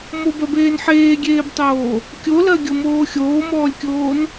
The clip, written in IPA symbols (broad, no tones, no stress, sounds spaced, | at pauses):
m o b ɜ b eː n ħ eː ɡʲ eː b tˤ oː | kʲ o l ɜ ɡʲ o m oː xʲ oː m ɔː lʲ kʲ oː n